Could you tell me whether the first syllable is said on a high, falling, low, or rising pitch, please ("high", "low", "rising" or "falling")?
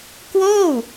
falling